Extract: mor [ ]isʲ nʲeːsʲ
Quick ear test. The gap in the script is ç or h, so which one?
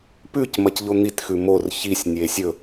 ç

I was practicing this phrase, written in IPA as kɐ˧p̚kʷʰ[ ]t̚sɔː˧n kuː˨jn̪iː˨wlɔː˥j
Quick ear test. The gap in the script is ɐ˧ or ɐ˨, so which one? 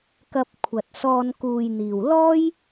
ɐ˨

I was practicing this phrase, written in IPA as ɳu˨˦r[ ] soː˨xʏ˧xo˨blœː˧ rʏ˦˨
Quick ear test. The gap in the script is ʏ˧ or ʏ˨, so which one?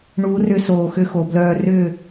ʏ˧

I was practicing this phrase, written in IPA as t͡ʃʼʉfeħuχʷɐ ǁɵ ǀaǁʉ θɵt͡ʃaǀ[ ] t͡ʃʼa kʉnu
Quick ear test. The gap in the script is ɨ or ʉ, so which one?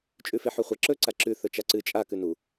ɨ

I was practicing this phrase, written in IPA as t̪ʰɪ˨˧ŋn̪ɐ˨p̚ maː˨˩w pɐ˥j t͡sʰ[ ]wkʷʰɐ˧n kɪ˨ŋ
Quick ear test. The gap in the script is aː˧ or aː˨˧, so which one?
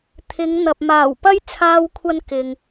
aː˧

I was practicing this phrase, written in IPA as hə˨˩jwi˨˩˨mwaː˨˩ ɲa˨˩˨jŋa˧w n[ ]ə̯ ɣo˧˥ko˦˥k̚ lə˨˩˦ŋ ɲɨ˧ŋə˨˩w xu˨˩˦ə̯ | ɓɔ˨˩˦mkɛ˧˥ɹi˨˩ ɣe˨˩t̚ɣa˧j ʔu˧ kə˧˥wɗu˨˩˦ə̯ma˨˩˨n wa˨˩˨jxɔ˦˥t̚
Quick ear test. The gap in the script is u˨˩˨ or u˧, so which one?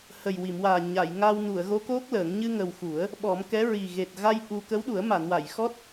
u˨˩˨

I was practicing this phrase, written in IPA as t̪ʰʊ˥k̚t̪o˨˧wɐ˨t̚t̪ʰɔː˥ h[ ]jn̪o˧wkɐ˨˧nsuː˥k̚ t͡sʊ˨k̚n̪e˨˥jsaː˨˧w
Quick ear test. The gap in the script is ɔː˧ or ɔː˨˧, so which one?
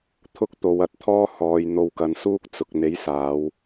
ɔː˨˧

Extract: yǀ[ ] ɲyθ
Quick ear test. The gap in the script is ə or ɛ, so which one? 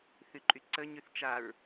ə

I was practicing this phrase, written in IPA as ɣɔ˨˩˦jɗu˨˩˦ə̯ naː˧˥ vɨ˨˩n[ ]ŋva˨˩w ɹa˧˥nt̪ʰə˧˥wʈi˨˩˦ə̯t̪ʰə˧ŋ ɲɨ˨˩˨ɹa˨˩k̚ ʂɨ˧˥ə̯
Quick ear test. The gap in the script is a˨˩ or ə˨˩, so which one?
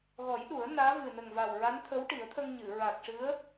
ə˨˩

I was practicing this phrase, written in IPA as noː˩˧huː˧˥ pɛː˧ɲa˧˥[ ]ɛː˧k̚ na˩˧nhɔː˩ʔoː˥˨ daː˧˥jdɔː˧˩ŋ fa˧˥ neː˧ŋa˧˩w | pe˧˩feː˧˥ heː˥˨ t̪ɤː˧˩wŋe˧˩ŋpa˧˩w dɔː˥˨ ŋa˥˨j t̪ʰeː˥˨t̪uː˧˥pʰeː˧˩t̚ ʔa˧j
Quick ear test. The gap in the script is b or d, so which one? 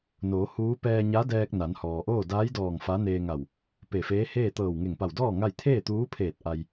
d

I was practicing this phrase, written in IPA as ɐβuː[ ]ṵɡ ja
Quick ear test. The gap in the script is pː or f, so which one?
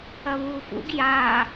f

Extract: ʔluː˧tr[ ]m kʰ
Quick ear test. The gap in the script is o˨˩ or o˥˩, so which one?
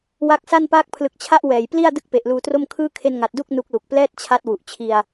o˥˩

